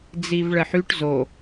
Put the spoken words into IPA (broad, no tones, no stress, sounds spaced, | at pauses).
d͡z i v ɭ ɜ ħ y ʈ z o